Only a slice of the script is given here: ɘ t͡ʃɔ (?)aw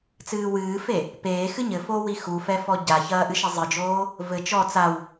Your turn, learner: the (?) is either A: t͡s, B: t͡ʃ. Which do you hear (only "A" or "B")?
A